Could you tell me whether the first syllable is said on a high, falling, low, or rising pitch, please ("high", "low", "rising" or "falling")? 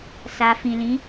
low